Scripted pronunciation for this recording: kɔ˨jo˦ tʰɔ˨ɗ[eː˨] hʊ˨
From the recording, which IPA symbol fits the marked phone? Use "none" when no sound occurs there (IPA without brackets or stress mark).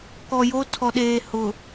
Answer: eː˨